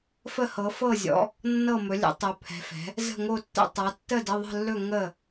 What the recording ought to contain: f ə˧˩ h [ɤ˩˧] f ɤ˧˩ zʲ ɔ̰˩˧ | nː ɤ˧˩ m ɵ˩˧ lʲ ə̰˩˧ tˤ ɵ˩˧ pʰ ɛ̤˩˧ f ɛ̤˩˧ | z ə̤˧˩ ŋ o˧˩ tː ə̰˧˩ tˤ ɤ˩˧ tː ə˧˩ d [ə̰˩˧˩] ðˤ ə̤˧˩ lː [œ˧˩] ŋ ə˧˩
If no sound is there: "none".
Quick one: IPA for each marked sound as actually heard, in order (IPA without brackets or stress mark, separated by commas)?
ɤ˩˧, ə˩˧˩, ɵ˧˩